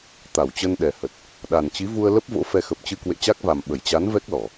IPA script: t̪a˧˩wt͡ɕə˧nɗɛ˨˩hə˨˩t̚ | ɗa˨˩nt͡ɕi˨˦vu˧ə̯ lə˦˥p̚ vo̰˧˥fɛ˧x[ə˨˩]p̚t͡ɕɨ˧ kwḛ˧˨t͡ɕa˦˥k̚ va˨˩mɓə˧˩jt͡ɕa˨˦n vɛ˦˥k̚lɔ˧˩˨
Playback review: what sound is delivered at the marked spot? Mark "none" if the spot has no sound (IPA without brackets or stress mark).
ə˨˩